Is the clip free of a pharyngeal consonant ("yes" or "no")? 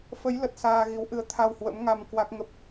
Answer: yes